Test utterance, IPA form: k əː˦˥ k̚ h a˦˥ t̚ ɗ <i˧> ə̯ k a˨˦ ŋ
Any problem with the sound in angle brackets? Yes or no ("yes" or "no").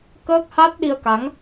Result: no